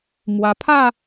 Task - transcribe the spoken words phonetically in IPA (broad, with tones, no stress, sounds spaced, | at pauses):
m w a˧ pʰ a˥˧